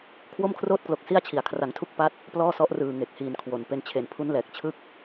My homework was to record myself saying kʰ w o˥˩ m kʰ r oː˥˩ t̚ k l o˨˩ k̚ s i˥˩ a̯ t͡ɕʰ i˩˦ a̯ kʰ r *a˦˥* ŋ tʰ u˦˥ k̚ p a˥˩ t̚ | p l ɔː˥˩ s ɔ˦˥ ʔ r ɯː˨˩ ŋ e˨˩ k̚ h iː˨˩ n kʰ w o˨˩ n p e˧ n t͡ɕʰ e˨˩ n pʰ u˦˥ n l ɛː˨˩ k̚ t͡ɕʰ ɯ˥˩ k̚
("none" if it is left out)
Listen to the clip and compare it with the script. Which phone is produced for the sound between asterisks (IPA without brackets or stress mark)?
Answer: a˩˦